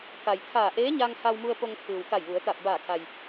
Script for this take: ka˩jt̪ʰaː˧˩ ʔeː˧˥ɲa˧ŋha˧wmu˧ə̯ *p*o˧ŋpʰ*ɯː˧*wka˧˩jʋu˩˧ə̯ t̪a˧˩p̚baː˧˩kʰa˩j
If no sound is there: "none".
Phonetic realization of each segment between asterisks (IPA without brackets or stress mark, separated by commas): p, ɯː˩